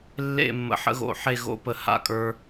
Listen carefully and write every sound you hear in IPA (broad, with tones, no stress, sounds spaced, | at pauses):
lː ḛ˥˧ mː ə̰˧ ħ ə̰˥ ɣ o̰˧˩ ħ e˥˧ ɣ o̰˥ p ə˥˧ h a̰˥˧ kʼ ə˞˥